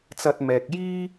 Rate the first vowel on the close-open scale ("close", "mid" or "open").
open